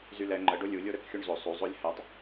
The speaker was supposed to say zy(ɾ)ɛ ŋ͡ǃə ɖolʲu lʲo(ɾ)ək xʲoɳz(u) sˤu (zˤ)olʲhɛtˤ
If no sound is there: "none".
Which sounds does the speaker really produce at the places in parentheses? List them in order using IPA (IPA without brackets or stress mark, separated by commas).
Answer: l, ɾ, o, zˤ